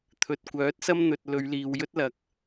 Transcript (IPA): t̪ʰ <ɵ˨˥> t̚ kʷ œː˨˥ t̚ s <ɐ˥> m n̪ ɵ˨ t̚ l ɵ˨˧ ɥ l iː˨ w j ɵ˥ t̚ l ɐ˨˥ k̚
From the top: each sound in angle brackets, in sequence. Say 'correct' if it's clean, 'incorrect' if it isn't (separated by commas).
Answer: incorrect, correct